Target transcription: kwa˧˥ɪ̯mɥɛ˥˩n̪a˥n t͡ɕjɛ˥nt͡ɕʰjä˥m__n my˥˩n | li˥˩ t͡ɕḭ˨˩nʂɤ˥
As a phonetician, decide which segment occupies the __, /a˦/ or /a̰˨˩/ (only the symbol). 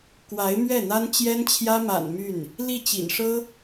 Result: a̰˨˩